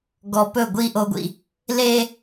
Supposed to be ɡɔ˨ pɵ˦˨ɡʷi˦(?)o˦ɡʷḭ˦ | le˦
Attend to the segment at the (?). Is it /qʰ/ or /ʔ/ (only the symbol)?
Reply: ʔ